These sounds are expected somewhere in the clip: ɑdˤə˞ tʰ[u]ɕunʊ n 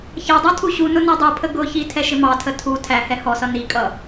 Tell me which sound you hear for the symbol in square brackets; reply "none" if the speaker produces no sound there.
u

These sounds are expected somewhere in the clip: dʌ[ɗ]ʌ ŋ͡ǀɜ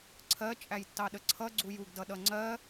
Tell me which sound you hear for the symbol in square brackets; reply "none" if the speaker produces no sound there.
ɗ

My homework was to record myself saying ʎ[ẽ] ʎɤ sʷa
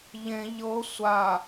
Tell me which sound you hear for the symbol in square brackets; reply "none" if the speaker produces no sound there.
ẽ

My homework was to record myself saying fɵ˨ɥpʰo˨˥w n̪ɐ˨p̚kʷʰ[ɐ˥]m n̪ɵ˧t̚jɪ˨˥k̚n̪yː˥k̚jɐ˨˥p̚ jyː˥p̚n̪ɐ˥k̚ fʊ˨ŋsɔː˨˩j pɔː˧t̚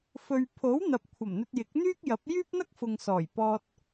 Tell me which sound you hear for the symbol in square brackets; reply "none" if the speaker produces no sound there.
ɐ˨˩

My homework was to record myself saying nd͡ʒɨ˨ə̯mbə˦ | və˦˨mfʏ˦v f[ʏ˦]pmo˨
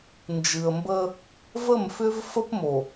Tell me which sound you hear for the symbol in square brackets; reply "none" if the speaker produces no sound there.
ə˦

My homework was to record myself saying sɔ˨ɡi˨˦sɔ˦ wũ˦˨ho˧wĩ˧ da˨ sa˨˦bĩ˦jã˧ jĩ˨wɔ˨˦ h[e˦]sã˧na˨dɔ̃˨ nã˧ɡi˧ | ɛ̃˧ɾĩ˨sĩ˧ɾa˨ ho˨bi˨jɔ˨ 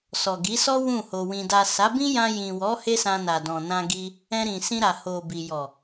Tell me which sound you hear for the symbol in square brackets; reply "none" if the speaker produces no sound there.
e˦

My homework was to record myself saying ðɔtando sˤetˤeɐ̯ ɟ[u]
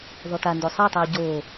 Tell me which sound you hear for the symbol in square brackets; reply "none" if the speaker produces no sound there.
o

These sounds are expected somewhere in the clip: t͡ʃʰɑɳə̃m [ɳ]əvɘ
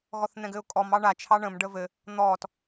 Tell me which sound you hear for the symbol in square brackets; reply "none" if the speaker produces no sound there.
ɖ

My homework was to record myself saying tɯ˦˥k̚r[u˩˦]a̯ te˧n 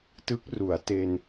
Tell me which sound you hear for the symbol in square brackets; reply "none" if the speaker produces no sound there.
u˩˦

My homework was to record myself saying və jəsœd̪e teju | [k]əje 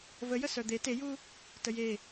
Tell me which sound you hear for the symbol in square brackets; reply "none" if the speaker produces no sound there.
t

